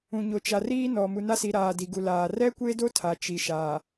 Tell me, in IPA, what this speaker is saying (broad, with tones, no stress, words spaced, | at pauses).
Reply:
ũ˨ɲo˨t͡ʃa˨riː˦ nɔ˨ mu˨na˦si˨ ɾaː˨di˨ɡu˨laː˨ rɛ˦kʷe˦do˦ tʰa˨t͡ʃi˨ ʃaː˨